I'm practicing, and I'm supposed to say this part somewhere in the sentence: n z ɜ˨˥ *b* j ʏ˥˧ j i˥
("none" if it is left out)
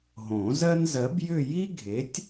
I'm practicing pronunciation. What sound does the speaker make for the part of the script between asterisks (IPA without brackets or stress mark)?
b